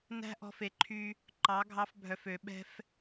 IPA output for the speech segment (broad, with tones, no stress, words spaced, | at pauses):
næ̤˦ʔɔ̤˧fe˨ ǃʰy˧ | ǃɑ˨˦ ɡʱɑ˧fbʱœ˨fø˨ɓɛ̤˧f